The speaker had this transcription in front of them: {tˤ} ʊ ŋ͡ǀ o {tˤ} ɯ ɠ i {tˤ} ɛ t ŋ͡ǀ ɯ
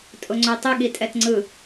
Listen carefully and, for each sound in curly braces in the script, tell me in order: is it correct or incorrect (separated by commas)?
incorrect, correct, incorrect